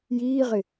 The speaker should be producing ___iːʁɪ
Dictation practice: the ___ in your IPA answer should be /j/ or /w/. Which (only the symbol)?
j